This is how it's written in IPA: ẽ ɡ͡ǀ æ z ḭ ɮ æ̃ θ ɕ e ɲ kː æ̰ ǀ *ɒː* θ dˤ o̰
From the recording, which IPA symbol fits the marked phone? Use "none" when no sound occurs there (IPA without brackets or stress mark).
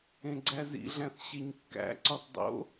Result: ɒ